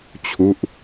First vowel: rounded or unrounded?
rounded